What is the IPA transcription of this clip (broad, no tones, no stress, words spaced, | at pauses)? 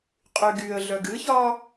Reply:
qʼyɡyə̯ɮœɡ ɨçɒ